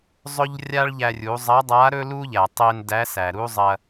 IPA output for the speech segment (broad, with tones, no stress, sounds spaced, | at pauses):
zˤ ɵ˥ ʎ rʲ a˥ ɭ ʎ æ˧ rʲ u˩˧ zˤ ɐ˧˥ dˤ a˧˥ ɾ ɵ˥ l u˥ ʎ æ˩ tˤ e˧ n d æ˧˥ s æ˩ ɾ u˥ zˤ ɐ˧